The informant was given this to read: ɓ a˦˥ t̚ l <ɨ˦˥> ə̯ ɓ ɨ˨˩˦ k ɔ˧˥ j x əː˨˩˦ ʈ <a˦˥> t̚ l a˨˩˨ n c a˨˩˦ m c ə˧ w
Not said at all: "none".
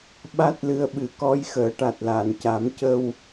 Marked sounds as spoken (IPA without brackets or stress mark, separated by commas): ɨ˧, a˨˩